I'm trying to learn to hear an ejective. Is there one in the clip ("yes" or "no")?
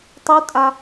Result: yes